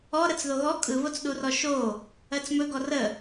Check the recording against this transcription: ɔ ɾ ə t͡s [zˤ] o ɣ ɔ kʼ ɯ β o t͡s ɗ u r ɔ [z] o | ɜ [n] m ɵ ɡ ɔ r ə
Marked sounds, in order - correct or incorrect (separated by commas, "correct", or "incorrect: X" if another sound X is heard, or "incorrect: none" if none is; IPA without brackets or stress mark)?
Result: incorrect: ð, incorrect: ʃ, incorrect: t͡s